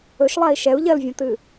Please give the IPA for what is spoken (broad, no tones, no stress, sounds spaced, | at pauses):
ɵ ʃ lˠ a i̯ ʃ ɛ u̯ ʎ ɜ l vʲ õ t ɨː